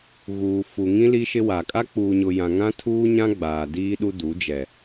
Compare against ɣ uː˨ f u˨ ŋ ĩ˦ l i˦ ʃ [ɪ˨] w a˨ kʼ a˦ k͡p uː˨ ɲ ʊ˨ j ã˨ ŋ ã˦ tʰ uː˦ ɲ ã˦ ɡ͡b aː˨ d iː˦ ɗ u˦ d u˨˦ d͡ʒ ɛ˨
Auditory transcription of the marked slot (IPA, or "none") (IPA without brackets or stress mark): ɪ˦